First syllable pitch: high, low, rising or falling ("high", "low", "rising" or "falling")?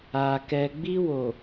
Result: low